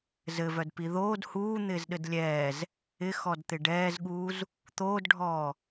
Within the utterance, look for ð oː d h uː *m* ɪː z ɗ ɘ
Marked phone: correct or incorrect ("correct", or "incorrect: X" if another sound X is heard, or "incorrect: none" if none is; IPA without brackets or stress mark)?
incorrect: n̪